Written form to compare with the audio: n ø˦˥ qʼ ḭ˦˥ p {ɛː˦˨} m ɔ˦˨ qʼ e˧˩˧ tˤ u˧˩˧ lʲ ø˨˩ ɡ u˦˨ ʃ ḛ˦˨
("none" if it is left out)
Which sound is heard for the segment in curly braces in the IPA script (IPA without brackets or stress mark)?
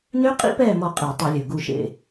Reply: ɛː˦˨